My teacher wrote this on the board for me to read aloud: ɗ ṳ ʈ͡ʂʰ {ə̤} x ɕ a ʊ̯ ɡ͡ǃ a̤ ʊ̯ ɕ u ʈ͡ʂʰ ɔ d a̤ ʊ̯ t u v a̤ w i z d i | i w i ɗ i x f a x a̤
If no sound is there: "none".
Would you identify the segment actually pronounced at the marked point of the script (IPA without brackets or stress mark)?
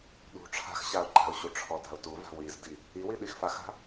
a̤